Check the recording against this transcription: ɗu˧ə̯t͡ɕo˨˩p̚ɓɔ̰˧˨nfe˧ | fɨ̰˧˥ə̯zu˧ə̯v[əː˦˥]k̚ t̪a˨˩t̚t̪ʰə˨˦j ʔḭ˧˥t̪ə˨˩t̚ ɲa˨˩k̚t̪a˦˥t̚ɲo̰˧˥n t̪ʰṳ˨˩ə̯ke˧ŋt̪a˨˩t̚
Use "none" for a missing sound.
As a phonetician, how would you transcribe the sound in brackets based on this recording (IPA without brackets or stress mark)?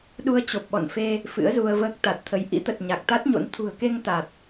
əː˦˥